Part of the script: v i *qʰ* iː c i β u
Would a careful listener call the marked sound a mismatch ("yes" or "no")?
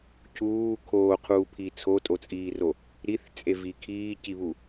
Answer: yes